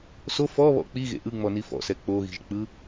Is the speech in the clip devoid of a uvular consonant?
yes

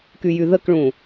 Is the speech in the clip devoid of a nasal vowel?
no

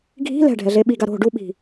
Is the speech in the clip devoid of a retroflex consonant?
no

